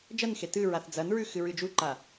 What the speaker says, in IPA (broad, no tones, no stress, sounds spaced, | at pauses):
d͡ʒ ɐ n x e t ɨ ɹ a θ d͡z ɐ n ɹ ʉ x ɨ ɹ ɨ d͡ʒ u ǃ a